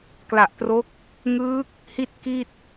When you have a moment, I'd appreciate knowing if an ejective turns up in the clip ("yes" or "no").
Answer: no